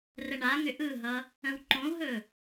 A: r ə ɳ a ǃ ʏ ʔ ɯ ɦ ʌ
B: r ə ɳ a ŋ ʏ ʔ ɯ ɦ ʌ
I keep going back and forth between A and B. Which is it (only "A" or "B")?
B